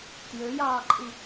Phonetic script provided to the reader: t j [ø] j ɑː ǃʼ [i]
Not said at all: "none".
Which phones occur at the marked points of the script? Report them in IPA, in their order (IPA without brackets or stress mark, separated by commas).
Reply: ø, i